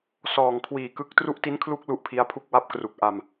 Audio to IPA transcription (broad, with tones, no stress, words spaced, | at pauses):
sɔː˨˩ŋkʰwiː˨˩kɯ˦˥k̚ tru˦˥ʔti˦˥nkʰlu˦˥k̚ lu˦˥ʔpʰi˦˥a̯pʰu˥˩k̚ wa˦˥p̚kru˨˩k̚ ʔa˧m